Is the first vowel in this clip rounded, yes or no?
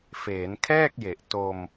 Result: no